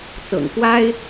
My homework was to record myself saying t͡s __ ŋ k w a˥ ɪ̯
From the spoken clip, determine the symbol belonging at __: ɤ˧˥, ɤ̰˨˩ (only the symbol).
ɤ̰˨˩